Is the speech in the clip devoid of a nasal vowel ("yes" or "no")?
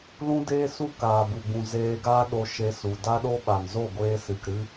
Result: no